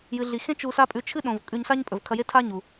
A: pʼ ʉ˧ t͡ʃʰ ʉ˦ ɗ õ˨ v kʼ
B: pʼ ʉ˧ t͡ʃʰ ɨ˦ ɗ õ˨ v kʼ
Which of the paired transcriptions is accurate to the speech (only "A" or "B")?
B